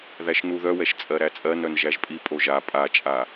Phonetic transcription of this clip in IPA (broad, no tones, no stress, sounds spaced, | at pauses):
ð æ ʃ n u ð œ w ɛ ʃ t͡sʼ ɜ ɾ æ t͡sʼ ɜ n œ n ʒ æ ʒ pʼ i pʼ o ʒ a pʼ a t͡ʃʼ a